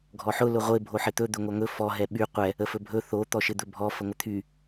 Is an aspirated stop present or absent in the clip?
present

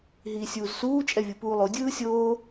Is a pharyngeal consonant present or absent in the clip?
absent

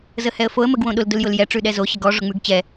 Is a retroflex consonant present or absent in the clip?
present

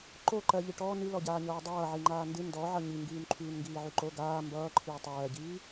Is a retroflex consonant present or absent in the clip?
present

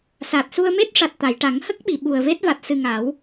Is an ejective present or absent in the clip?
absent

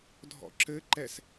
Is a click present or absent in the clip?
present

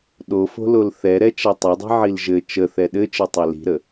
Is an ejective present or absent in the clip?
absent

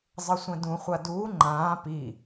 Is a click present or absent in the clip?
present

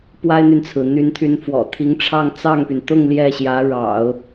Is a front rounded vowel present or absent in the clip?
present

